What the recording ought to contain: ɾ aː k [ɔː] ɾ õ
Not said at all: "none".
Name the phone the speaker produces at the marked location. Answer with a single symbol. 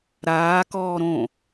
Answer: ɔː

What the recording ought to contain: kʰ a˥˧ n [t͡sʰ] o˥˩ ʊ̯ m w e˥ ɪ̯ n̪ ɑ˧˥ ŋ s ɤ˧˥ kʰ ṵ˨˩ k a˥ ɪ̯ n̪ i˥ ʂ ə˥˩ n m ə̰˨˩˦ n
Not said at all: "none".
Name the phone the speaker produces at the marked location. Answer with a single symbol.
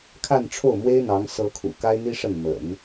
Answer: ʈ͡ʂʰ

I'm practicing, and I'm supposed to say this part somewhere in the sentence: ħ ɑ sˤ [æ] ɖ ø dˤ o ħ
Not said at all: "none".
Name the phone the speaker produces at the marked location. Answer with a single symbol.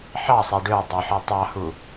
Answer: æ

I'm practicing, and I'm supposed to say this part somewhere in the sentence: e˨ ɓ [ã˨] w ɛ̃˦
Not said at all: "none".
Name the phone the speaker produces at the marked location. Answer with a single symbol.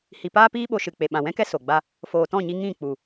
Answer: ã˨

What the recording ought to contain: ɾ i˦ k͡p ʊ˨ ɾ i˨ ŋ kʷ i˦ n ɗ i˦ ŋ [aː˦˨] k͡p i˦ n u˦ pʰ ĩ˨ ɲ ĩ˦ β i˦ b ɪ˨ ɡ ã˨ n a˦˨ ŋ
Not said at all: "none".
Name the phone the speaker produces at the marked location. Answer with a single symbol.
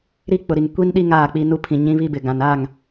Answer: aː˦˨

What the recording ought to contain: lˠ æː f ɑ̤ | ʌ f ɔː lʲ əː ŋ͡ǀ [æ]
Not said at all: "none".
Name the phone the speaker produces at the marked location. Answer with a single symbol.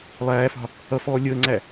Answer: æ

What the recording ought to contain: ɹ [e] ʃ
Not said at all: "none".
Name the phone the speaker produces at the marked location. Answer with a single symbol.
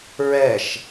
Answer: ɛ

